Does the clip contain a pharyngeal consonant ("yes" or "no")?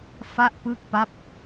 no